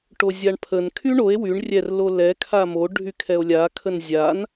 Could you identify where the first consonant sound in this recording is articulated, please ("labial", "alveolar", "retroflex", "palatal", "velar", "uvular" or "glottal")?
retroflex